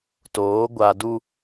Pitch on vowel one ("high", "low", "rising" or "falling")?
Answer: rising